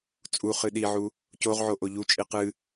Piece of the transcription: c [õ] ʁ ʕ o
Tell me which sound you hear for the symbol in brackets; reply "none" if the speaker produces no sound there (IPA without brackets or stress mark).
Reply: o